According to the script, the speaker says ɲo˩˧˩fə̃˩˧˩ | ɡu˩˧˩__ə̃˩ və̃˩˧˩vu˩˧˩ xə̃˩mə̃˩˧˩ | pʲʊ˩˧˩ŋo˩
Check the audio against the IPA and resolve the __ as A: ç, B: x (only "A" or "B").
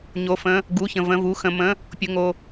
A